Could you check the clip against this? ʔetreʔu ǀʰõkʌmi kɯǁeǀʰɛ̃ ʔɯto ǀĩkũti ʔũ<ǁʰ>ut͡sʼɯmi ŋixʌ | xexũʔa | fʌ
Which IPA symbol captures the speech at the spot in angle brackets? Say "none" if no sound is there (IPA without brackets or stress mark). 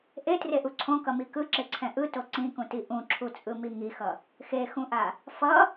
ǁʰ